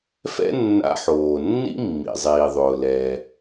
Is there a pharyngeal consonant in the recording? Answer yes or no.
yes